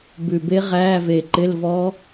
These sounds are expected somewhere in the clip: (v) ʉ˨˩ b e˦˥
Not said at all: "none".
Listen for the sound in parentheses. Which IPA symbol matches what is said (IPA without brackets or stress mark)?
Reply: b